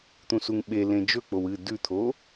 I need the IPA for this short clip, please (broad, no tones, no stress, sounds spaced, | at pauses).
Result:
t̪ ũ s u ŋ ɓ e l ẽ d͡ʒ ɵ k͡p o w ɨ d ʉ t̪ʰ o